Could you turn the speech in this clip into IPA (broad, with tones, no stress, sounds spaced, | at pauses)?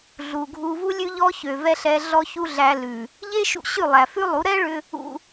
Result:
ɮ u˨ ɡʱ u˧ v u˦ lʲ ʉ˦ ʎ ɔ˦ ç ø˨ v ɛ˧ ɬ ɛ˧ ɮ ɔ˧ ç u˧ ɮ æ˧ l ʉ˨ | ʎ e˦ ʃ ṵ˧ ɕ ʉ˦˨ lˠ æ˨ f ʉ˦ lˠ u˨˦ ɾ ɛ˦ ɭ ʏ˧ | ṵ˧